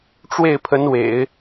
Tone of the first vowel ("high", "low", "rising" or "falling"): falling